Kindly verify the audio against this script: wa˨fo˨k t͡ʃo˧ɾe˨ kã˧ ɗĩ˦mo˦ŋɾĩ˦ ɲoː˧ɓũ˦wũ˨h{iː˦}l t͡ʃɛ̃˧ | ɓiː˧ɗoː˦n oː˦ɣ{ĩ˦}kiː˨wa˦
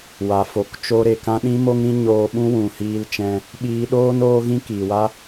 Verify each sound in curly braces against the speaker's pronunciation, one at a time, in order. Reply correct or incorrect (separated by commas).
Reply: incorrect, correct